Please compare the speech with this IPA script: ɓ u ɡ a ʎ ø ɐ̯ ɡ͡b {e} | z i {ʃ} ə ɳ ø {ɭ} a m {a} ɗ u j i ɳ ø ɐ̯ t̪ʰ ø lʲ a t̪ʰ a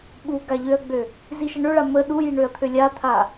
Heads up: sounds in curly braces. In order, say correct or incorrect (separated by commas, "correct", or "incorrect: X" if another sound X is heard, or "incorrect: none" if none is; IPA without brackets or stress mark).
incorrect: ø, correct, correct, incorrect: ə